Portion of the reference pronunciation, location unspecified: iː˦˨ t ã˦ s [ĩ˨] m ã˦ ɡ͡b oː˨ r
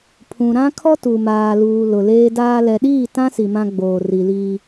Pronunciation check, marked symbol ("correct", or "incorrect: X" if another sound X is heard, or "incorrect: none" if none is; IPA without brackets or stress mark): incorrect: i˨